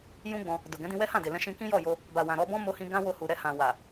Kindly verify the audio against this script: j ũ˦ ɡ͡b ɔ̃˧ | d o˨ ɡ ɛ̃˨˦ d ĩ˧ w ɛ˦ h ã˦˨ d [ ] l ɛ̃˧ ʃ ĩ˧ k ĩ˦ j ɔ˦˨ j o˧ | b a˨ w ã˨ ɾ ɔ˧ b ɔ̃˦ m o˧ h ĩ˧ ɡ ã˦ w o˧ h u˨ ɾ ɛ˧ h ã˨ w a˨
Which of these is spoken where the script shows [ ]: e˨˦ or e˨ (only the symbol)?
e˨